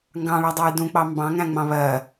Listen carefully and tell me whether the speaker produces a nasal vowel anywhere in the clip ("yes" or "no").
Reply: yes